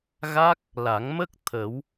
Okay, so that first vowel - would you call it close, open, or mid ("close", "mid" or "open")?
open